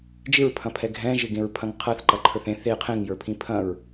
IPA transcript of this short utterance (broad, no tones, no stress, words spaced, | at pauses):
d͡ʒɪɹpʰɐ̃pʰɛ ɡʱɛ̃ʒɪɡẽɹpʰɐ̃ŋ qʰɐθǃɐǃʰə˞θ ẽθ e qʰẽŋjə˞pʰĩ pʰɐ̃ɹ